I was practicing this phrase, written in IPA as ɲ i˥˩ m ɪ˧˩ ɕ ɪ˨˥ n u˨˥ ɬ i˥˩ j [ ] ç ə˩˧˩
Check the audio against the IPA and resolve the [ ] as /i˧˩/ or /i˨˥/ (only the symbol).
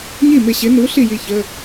i˧˩